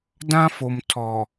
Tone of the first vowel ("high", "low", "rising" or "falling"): high